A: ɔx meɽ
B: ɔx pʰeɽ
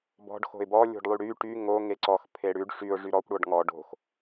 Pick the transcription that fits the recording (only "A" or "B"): B